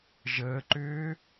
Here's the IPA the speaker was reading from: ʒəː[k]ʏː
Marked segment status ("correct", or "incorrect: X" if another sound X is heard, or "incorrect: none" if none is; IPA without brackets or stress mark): incorrect: ǃ